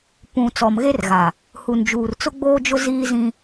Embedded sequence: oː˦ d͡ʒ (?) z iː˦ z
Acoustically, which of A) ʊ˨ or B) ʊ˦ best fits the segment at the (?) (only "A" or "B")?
B